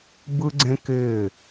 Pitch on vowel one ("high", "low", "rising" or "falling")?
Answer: high